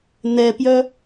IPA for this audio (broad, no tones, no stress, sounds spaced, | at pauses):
n̪ ɛ p j œ